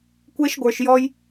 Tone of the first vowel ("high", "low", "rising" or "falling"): high